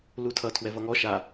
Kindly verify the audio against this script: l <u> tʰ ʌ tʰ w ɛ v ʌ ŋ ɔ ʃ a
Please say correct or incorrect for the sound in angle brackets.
correct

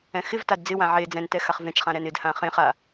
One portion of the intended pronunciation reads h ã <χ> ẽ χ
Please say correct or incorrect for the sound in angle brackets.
correct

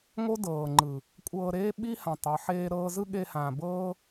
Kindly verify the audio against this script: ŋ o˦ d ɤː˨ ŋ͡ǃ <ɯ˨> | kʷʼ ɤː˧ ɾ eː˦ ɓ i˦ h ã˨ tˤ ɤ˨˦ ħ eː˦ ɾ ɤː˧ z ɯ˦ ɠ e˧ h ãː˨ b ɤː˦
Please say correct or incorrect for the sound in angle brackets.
correct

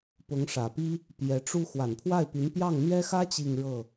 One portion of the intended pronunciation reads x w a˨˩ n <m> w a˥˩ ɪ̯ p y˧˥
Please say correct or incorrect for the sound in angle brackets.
incorrect: pʰ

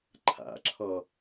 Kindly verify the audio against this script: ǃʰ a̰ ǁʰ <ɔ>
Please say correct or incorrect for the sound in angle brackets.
correct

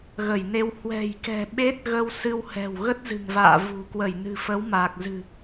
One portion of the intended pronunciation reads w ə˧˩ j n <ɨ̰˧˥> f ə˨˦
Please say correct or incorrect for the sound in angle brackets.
incorrect: ɨ̤˨˩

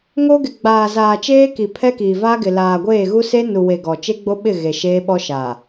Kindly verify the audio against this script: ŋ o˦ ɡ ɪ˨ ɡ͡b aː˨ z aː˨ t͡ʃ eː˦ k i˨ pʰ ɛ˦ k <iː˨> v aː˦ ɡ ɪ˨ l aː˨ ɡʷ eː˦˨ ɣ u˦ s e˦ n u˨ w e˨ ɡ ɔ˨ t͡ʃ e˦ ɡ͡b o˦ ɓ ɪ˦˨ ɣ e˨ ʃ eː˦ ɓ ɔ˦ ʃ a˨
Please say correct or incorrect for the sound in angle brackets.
correct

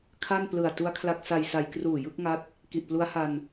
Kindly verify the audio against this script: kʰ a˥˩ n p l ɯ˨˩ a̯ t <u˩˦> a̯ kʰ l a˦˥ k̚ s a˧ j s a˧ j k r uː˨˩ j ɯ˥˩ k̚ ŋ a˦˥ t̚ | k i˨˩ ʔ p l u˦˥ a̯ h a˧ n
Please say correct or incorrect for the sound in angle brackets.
incorrect: u˦˥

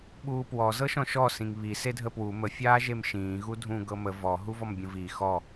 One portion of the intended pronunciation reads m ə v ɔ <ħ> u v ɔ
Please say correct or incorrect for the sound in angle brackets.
incorrect: ɦ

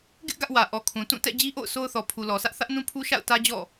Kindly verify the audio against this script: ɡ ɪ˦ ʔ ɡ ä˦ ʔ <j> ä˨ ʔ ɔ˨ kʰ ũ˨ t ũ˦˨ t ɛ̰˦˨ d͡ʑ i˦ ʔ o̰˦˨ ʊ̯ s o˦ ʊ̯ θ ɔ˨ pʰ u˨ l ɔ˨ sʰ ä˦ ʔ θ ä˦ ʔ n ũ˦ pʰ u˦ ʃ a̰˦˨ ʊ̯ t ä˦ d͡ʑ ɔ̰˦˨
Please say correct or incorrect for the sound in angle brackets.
incorrect: w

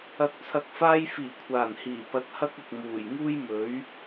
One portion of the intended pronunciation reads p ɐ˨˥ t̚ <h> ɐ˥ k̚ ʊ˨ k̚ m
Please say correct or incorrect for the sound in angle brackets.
correct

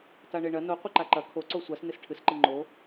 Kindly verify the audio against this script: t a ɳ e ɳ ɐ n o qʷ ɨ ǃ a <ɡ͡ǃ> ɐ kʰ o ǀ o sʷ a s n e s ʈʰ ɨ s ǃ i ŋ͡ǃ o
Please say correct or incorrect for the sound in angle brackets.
incorrect: ǃ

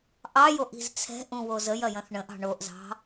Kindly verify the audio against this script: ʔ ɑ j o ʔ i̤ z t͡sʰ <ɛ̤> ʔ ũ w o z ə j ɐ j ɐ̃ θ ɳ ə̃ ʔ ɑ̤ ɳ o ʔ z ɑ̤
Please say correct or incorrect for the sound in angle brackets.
correct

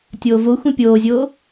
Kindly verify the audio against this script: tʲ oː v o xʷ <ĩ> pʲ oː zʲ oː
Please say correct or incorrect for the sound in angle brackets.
correct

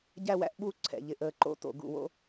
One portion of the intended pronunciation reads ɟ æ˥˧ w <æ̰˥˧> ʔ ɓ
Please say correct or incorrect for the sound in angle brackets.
correct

